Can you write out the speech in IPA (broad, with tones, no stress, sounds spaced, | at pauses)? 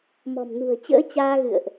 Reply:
m ɔ̤˨˩ m n ṳ˨˩ ə̯ t͡ɕ ə̰ː˧˥ t͡ɕ aː˧ ɣ ɨ̰˧˨ ə̯ ʔ